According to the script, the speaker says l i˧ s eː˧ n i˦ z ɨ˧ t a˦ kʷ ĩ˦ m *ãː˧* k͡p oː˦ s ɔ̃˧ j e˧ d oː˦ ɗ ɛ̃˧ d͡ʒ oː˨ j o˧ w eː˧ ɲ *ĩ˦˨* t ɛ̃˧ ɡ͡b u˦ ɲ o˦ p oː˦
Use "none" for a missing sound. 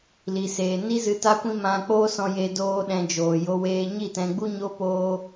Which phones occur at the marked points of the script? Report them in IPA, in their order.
ã˧, i˦˨

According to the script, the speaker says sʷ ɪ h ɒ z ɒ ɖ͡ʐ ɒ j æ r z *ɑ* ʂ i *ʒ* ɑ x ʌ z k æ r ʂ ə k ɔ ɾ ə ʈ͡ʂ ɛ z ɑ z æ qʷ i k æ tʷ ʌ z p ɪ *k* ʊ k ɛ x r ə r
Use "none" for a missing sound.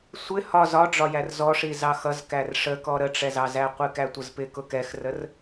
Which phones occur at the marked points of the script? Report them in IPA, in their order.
ɔ, z, k

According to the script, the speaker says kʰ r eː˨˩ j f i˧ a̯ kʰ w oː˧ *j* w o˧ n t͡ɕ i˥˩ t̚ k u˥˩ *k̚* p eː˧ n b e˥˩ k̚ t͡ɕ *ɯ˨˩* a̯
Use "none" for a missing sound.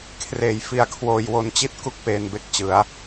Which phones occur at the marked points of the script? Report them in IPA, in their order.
j, k̚, ɯ˦˥

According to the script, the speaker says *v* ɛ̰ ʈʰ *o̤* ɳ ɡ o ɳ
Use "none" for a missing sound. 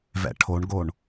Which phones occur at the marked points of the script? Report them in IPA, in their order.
v, o

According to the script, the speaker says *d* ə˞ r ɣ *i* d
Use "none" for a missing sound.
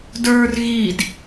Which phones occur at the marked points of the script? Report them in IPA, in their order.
d, i

